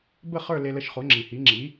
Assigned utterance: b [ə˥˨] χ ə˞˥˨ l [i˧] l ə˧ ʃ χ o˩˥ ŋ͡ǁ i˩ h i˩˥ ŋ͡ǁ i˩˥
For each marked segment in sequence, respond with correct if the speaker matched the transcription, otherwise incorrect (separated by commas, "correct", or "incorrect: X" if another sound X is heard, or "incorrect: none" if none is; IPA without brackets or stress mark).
correct, incorrect: e˧